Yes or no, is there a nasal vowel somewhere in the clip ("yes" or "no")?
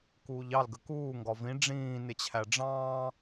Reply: yes